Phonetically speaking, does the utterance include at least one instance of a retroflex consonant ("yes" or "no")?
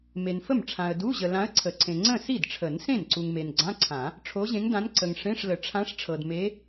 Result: yes